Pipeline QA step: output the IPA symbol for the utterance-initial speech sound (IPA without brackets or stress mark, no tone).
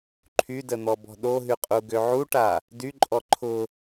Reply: ǃʰ